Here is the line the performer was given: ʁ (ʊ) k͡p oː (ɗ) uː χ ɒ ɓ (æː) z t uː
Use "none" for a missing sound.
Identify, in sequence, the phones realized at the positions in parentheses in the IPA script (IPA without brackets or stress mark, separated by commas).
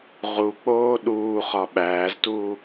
u, ɗ, æː